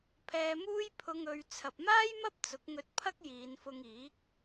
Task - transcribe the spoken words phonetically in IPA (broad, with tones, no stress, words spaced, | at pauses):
pʰɛː˧muː˥j pʰʊ˧ŋɵ˨˧ɥ t͡sʰɐ˨p̚maː˥jmɐ˥p̚ t͡sʊ˨˥k̚ŋɵ˧t̚ pʰɐ˥k̚jiː˨˧nfʊ˧ŋiː˨˥k̚